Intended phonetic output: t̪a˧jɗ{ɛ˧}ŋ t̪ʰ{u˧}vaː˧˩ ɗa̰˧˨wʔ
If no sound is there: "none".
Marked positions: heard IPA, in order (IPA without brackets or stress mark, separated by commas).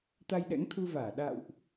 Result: ɛ̰˧˥, u˧